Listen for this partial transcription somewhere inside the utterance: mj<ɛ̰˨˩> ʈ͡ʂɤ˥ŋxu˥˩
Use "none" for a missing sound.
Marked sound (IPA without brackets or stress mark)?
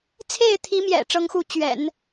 ɛ̰˨˩